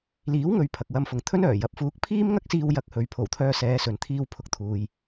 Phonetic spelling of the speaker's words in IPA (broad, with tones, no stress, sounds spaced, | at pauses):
l iː˨˥ w ŋ ɵ˨˧ ɥ pʰ ɐ˨ k̚ w ɐ˧ m f ʊ˨ ŋ t̪ʰ ɵ˥ n œː˨˩ j ɐ˨˥ p̚ f uː˨˥ k̚ pʰ iː˥ m ŋ ɐ˥ k̚ s iː˧ w j ɐ˧ k̚ h ɵ˨˧ ɥ pʰ o˨˩ w t̪ʰ œː˧ s ɛː˨˧ s ɵ˨ n t̪ʰ iː˧ w pʰ ʊ˨˥ k̚ t̪ʰ uː˨ j